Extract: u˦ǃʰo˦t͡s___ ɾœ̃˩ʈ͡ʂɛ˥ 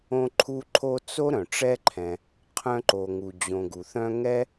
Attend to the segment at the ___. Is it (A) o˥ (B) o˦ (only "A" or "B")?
A